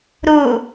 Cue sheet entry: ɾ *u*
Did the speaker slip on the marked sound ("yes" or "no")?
no